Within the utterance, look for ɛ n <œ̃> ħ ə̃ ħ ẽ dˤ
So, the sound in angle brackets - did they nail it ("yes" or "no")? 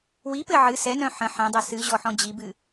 yes